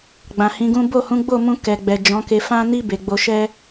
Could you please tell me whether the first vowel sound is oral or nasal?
nasal